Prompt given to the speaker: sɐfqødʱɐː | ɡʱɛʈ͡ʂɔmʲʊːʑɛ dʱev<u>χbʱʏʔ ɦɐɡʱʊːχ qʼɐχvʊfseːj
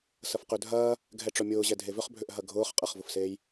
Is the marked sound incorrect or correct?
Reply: incorrect